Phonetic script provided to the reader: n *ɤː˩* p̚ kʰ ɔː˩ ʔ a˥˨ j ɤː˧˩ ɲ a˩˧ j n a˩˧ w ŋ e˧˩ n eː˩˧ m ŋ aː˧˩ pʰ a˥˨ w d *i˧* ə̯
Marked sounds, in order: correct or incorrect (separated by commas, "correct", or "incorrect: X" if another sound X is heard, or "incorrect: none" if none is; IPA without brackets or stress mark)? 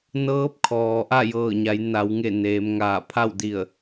incorrect: ɤː˧˥, incorrect: i˧˩